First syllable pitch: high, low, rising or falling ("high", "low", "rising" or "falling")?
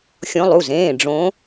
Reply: rising